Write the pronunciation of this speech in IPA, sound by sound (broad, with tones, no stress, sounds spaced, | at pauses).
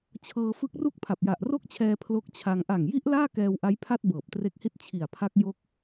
t͡ɕʰ ɤː˧ f ɯ˦˥ k̚ r u˥˩ k̚ pʰ a˨˩ p̚ j a˨˩ ʔ r o˥˩ k̚ t͡ɕʰ ɛː˧ pʰ l o˦˥ k̚ t͡ɕʰ a˧ ŋ ʔ a˨˩ ŋ j i˦˥ ʔ l aː˥˩ k ɛː˧ w ʔ a˦˥ j pʰ a˥˩ t̚ b ɤː˨˩ p̚ t r e˦˥ k̚ h i˥˩ t̚ t͡ɕʰ i˨˩ a̯ pʰ a˦˥ k̚ j o˦˥ k̚